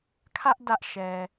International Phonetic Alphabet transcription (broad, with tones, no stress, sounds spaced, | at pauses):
kʰ ä˦ ʔ d ä˦ ʔ ʃ ɛ˨